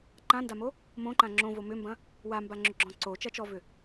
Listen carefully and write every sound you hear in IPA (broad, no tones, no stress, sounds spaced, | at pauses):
ǃ ã n d a m o | m õ ǃ ã ŋ͡ǁ õ v o m ʏ m b ɐ̃ | w a m b a ŋ͡ǁ ʏ ɡ͡ǁ ɔ̃ ǀ o t͡ʃ ɐ t͡ʃ ɔ v ʏ